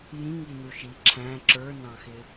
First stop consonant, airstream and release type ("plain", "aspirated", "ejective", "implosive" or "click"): click